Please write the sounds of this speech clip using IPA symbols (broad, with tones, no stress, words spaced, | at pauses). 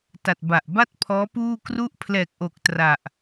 ta˨˩t̚ba˨˩ʔ ba˥˩t̚pʰɔː˦˥ puː˥˩kru˥˩ʔ pʰlɛː˨˩k̚ʔo˨˩k̚ tra˨˩ʔ